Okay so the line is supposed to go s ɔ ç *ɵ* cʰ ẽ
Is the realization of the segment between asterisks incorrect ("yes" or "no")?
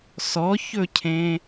no